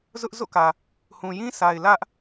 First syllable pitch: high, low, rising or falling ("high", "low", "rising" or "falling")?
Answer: high